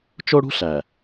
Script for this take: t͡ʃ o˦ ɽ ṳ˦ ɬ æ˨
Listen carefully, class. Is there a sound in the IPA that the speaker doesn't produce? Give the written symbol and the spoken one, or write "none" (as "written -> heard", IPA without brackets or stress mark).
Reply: none